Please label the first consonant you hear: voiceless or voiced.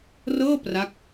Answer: voiced